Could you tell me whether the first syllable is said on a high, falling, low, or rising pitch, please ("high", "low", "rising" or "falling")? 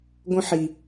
high